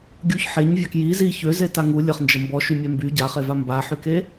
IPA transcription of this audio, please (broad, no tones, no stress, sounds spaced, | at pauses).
ɡʲ u ç ħ e ɲ vʲ a k j i z i ç ø z e t a ŋ u lʲ ə χ n d͡ʒ ə m b ɔ ʃ y mʲ ɛ m b y ɟ a χ e v a m b a ħ y k e